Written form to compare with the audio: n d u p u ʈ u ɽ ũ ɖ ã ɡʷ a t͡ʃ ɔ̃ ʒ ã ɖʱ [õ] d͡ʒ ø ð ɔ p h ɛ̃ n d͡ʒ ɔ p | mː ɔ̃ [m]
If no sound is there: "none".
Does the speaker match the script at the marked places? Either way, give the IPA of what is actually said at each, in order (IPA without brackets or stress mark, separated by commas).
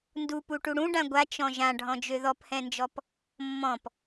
ɔ̃, p